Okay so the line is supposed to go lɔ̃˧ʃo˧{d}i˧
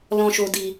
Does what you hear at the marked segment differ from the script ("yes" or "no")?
no